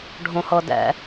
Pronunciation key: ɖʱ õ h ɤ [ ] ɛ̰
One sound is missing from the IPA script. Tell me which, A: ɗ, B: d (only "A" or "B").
B